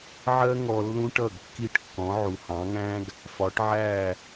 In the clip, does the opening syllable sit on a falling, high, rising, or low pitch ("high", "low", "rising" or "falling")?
high